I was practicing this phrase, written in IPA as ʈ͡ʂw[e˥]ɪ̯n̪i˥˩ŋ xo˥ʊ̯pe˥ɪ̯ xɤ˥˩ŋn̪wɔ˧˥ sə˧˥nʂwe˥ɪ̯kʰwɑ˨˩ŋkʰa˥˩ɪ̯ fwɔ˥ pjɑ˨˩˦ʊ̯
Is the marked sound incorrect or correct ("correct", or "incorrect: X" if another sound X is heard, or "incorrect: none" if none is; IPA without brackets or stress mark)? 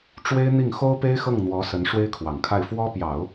correct